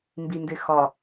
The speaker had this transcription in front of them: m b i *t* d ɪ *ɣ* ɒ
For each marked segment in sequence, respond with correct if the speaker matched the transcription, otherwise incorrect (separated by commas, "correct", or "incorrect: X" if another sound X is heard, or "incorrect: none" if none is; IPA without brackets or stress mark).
incorrect: n, incorrect: x